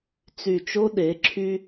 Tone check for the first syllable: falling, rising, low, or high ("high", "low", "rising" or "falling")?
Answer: low